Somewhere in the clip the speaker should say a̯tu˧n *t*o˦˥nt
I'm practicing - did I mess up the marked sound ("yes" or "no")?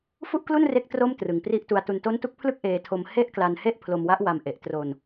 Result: no